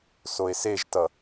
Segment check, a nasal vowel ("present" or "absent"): absent